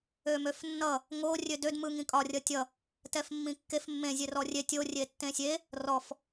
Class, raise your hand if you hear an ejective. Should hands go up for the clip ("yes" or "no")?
yes